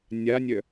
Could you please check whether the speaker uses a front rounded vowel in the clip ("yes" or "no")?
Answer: yes